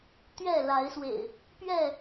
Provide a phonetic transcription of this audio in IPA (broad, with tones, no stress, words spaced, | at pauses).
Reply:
t̪ɥɛ˥˨la˨˦ɪ̯swḛ˨˩ɪ̯ | pɥɛ˥˨